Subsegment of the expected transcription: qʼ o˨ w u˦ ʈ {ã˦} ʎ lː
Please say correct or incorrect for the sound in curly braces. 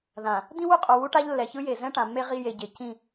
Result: incorrect